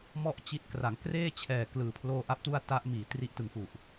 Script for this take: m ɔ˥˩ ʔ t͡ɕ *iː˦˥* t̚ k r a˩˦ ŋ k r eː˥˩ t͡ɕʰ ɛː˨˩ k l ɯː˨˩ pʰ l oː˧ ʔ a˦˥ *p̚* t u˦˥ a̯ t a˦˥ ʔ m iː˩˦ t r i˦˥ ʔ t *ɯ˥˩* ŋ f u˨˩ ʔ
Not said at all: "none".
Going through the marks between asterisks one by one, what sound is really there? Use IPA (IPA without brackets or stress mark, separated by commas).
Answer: i˦˥, p̚, ɯ˩˦